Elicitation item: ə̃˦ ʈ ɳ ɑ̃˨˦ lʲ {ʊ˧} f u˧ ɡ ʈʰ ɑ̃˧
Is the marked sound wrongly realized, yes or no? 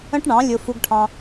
no